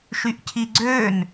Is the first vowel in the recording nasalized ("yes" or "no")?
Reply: no